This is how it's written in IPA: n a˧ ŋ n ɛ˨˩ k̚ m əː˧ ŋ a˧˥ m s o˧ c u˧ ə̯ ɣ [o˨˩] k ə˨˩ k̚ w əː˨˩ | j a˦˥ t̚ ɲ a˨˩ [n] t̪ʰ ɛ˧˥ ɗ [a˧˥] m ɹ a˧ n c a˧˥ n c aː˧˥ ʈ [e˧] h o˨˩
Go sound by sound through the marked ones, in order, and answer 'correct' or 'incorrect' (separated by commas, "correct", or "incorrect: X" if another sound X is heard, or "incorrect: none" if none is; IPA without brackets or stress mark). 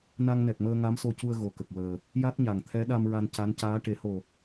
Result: correct, incorrect: ŋ, incorrect: a˧, incorrect: e˨˩˦